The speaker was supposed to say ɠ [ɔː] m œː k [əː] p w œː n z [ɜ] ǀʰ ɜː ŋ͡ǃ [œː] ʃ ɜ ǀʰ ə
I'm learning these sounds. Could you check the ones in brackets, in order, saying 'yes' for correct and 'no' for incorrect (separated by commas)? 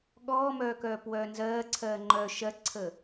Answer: yes, no, no, yes